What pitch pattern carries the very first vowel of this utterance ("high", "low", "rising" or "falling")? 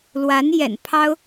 rising